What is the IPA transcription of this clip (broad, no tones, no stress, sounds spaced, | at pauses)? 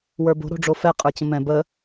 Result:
w ə˞ b o̤ ɾ o̤ ɖ͡ʐ o f ɛ qʼ ə˞ t͡ɕ ə̃ m ɛ̃ b ə